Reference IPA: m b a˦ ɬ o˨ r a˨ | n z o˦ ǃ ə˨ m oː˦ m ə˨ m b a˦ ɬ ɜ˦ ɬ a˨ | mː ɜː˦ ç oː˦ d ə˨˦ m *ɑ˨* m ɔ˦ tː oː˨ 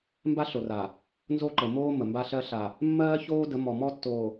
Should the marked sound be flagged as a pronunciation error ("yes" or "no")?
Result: yes